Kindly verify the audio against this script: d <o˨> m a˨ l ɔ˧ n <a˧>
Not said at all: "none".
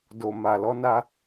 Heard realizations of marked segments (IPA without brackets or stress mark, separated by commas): o˨, a˧